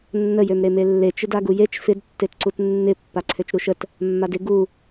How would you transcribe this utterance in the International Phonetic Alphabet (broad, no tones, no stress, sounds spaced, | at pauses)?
nː ə j ø m ɾ e m e lː e t͡ʃ ɪ d a ɡ u j e t͡ʃ f ɪ d tː e t ǀ u t nː ɪ pː a ǀʰ ø t͡ʃ ɾ u ʃ ə t | mː a d ɪ ɡ u